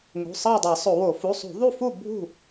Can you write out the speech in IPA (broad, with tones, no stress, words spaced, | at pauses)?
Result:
ŋṳ˩˧˩sˤɑ˥˨dˤɑ˧˩˧ sˤo˧˩˧wo˧˩˧ fu˩˧˩sˤṳ˧˩˧ðˤu˥˨fu˥˨ bʱṳ˥˨